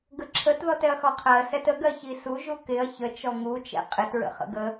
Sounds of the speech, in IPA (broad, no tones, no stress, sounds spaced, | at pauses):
ɡ ə ǁʰ ə t ð ɔ t ɛ ɐ̯ x ɔ qʰ ɜ s ɛ t ə ɡ ɜ ç i s u ʒ u k ɪ ɐ̯ ç ə t͡ʃ ɔ ŋ u t͡ʃ ɛ̰ qʼ ɪ t ɹ ə̰ χ ə̰ ɡ ə